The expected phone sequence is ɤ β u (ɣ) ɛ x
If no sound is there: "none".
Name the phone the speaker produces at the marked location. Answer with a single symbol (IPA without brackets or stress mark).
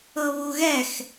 ɣ